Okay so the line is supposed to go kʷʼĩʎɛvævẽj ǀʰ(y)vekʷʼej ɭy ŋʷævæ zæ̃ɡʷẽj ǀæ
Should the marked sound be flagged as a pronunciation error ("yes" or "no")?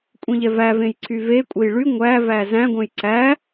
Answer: no